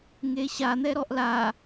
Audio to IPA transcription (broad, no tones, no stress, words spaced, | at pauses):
ŋeɕa n̪ɛɾɔʔla